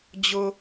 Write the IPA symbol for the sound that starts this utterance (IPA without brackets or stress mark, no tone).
d͡ʑ